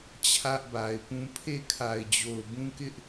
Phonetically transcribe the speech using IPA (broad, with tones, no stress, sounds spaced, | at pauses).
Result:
t͡ɕʰ ä˦ ʔ b a˨ ɪ̯ p ũ˦ pʰ e˦˨ kʰ a˨ ɪ̯ d͡ʑ o˨ ʊ̯ b ũ˦ k ɪ˦ ʔ